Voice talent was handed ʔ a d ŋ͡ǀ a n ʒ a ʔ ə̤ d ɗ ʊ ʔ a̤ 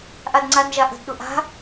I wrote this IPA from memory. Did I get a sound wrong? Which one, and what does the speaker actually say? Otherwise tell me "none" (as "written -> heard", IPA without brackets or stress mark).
none